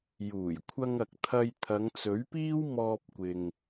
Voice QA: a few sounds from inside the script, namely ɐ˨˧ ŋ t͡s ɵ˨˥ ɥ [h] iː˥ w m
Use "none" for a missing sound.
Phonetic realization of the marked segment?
p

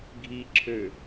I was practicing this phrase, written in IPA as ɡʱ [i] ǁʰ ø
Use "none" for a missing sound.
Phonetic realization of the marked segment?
i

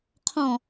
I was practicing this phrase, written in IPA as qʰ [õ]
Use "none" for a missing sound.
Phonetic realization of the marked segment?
ɔ̃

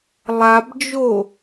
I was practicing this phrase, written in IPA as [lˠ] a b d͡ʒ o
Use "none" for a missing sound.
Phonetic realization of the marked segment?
lˠ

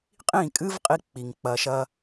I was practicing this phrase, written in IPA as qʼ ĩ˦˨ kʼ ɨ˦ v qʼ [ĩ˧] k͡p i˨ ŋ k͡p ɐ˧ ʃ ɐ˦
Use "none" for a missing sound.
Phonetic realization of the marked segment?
i˧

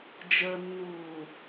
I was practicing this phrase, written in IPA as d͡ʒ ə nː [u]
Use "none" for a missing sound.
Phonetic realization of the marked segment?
uː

